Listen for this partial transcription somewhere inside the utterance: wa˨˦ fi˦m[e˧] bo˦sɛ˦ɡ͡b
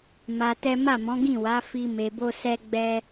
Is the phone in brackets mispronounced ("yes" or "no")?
no